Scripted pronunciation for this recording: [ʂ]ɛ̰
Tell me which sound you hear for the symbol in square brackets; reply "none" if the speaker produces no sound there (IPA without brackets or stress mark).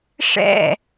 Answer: ʂ